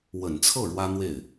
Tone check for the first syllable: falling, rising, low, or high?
low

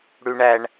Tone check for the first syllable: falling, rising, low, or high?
high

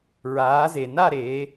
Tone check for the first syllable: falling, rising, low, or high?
rising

